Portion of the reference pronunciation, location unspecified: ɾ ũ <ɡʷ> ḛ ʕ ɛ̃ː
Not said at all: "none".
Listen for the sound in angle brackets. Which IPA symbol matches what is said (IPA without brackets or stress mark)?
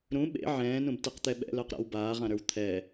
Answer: ɓ